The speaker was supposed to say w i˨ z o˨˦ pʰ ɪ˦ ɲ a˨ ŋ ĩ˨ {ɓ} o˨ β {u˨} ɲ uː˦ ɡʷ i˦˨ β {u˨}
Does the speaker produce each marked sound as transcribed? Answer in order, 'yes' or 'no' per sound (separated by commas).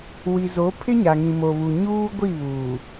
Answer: no, yes, no